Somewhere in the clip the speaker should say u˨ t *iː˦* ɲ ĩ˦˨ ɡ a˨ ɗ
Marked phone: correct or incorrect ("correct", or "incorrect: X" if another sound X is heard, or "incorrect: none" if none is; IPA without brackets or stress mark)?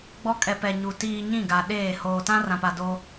incorrect: iː˨